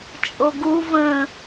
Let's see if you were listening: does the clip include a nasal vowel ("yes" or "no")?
yes